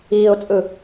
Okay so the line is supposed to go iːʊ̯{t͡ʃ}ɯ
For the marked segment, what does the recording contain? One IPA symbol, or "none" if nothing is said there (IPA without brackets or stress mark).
t͡sʼ